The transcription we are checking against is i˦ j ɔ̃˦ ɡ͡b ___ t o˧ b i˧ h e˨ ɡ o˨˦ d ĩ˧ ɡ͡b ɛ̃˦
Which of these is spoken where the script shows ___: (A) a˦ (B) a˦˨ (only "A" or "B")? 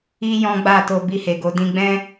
B